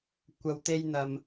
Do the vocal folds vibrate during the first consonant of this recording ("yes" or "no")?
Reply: no